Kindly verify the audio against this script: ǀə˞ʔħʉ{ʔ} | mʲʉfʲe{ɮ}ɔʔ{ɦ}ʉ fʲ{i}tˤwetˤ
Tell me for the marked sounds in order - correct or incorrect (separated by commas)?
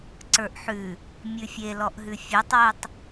incorrect, incorrect, correct, incorrect